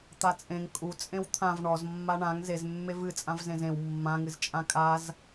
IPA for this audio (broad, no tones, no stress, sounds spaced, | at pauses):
t̪ a t͡sʼ ẽ ŋ kʼ u t͡sʼ ẽ w t̪ʰ ã v ɳ ɔ z mː a ɳ ã ŋ z e z mː e v ɨ t͡sʼ ã v z ẽ z ẽ w mː ã ŋ ɨ z t͡ʃʼ ã kʼ a z